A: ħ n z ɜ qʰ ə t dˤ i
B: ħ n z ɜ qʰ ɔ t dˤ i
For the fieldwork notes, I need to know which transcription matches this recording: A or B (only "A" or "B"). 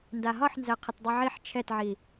A